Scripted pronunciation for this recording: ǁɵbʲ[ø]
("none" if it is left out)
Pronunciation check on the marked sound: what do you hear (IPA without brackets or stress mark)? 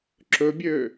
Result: ø